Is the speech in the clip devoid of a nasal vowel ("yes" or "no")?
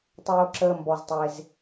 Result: yes